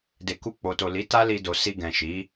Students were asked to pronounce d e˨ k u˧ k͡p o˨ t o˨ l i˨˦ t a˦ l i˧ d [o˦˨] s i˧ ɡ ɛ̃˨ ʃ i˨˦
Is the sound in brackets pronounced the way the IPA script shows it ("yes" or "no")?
no